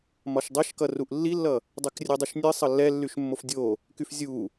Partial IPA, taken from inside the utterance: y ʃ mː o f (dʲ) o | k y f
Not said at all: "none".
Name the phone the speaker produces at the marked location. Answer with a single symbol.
dʲ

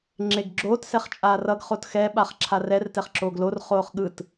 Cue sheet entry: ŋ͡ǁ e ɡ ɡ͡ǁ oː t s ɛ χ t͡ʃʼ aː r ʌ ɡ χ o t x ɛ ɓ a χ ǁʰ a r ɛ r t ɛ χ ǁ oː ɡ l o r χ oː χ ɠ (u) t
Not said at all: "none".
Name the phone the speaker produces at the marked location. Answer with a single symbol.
ɯ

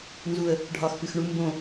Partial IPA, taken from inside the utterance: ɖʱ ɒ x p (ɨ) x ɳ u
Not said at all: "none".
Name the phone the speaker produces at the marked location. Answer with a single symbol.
ɨ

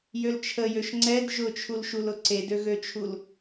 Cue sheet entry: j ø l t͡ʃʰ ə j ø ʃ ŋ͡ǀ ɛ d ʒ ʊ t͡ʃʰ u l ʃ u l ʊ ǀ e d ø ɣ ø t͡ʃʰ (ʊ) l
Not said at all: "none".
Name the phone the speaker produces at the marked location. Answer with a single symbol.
u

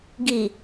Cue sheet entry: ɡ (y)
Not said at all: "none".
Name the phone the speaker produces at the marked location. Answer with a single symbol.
i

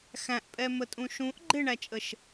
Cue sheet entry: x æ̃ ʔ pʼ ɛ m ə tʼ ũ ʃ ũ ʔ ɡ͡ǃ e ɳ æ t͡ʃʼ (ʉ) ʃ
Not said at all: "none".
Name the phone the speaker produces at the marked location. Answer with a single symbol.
ə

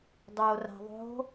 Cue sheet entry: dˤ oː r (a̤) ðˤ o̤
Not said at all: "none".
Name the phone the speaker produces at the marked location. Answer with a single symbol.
a̤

